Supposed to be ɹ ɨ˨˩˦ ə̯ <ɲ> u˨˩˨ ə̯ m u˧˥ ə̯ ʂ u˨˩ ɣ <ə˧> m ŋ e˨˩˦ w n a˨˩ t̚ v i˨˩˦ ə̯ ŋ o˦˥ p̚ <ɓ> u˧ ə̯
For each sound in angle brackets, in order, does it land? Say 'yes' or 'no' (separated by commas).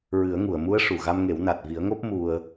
no, no, no